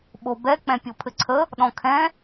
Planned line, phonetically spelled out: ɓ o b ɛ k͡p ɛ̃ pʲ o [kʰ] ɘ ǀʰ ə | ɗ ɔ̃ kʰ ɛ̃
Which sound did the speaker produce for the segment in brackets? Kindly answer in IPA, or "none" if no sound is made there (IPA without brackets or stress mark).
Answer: pʰ